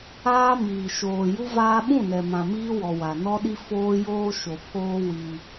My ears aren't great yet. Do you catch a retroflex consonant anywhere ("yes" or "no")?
no